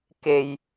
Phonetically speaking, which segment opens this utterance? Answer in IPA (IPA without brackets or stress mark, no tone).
k